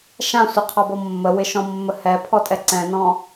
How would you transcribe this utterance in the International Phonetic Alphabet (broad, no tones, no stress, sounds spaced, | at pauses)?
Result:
ʃ ã sʷ ə qʰ ɔ b ɔ mː ə w ɪ ʃ ɔ̃ mː ə h ɛ pʰ ɔ tʼ ɛ ǀ ɛ̃ n ɔ̃